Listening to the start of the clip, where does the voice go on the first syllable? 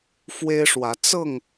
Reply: high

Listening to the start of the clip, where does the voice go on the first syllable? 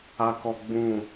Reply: low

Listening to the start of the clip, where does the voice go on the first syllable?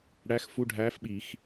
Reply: rising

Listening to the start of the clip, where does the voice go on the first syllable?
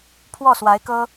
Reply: falling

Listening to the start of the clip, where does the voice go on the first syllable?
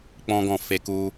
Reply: high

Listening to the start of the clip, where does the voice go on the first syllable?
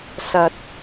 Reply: low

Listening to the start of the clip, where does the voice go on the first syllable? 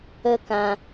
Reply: high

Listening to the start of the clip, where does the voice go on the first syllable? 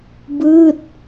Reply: falling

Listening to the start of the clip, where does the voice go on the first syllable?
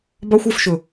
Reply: high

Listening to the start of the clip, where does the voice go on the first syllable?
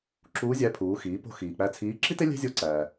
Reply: rising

